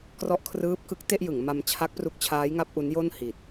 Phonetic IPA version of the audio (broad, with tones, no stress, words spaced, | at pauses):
krɔ˦˥ʔkʰrɯː˦˥p̚kɯ˦˥k̚ te˥˩ʔjɯ˩˦ŋma˧m t͡ɕʰa˦˥k̚pru˦˥k̚t͡ɕʰaː˦˥j ŋa˦˥p̚ʔu˦˥njo˥˩n hi˨˩t̚